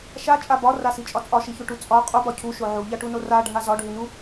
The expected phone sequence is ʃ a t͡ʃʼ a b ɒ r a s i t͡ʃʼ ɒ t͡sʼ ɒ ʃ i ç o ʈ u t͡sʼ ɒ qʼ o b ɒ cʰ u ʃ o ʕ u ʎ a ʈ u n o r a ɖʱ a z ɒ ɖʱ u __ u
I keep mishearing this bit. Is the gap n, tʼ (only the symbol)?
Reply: n